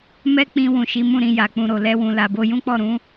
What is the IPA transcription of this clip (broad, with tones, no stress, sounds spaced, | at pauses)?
m ɛ˦ k͡p ĩ˧ w ũ˨ ʃ i˨˦ m ũ˦˨ ɾ ĩ˧ j a˨ k͡p ũ˨ ɾ o˨ l ɛ˧ w ũ˨ l a˨ b o˧ j ũ˦ k͡p ɔ˦˨ ɾ ũ˨˦